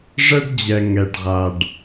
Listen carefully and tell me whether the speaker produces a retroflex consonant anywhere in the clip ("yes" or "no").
yes